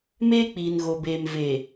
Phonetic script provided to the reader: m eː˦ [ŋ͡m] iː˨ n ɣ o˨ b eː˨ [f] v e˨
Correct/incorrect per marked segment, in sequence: incorrect: k͡p, incorrect: m

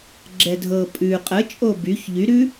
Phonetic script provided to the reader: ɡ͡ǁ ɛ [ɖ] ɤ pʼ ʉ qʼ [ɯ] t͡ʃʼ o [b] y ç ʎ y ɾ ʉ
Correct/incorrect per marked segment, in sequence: incorrect: dʱ, incorrect: ə, correct

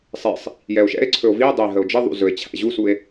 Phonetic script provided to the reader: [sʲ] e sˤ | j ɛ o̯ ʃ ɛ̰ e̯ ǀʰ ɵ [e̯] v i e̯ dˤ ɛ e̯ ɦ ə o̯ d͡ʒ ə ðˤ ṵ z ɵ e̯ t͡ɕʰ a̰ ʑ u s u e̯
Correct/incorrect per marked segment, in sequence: incorrect: sˤ, incorrect: o̯

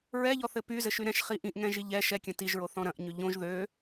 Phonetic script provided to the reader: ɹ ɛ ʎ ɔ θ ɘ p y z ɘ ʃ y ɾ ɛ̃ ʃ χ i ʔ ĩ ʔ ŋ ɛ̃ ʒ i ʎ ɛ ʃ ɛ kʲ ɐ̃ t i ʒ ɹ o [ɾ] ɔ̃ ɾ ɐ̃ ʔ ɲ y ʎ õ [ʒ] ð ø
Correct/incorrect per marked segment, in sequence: incorrect: θ, correct

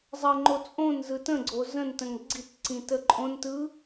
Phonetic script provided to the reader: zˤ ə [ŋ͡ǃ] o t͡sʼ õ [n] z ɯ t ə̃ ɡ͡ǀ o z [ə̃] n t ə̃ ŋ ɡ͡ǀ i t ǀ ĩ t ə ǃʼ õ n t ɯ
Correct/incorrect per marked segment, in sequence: correct, correct, correct

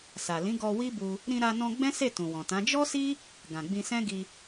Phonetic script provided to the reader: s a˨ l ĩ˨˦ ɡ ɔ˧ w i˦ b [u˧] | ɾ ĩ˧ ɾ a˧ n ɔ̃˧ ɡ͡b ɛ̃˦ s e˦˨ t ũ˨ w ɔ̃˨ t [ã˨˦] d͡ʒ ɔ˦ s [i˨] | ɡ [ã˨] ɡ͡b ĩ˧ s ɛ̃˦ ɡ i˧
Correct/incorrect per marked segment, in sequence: correct, correct, incorrect: i˦, correct

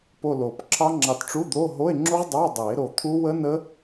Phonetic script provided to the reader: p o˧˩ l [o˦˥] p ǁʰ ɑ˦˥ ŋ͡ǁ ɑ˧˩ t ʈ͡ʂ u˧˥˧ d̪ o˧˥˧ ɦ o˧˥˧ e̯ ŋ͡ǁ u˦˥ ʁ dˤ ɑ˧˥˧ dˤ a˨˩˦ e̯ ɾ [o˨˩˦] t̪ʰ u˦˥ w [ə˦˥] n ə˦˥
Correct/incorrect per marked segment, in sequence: incorrect: o˨˩˦, incorrect: o˧˩, correct

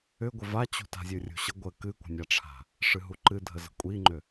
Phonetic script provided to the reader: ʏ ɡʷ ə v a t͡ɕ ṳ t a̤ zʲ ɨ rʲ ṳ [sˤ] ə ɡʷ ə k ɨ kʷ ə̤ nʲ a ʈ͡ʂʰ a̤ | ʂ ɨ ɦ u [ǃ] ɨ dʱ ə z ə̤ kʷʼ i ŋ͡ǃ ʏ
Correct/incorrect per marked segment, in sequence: incorrect: ɕ, correct

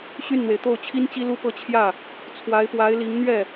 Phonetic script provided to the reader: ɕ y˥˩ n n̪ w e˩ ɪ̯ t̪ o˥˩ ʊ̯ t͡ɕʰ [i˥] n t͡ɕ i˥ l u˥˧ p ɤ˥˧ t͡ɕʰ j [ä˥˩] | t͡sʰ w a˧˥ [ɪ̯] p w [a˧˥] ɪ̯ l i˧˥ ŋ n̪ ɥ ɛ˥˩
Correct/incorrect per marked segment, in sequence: correct, correct, correct, correct

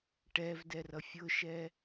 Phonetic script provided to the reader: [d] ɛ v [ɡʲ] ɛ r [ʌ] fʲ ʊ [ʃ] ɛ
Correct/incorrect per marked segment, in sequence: incorrect: ʈ, incorrect: d, correct, correct

